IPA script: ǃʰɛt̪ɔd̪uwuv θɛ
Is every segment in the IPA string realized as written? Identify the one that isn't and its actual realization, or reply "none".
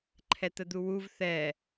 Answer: ɔ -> ə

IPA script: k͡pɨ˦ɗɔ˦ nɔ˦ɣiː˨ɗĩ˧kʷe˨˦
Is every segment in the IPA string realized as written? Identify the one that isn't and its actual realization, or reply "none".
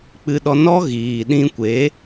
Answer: none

